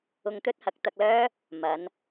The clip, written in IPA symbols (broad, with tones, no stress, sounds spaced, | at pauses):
ʊ˧ ŋ t̪ ɵ˥ t̚ h ɐ˨˥ k̚ t̪ ɐ˧ k̚ l œː˥ | m ɐ˨˧ n